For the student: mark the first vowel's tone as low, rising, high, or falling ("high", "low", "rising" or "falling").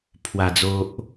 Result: low